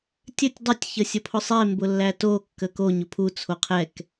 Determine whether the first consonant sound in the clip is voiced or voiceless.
voiceless